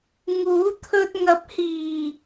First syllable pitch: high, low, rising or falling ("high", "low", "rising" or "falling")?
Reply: rising